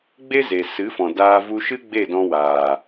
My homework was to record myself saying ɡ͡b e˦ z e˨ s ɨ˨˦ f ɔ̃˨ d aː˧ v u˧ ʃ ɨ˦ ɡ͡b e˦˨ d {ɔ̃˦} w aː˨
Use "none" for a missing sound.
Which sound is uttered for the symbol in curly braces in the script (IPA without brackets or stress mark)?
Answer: ɔ̃˧